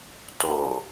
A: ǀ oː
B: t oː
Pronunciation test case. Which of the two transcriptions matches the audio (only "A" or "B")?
B